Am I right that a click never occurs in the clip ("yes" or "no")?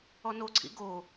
no